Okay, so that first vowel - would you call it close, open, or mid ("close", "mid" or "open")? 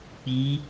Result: close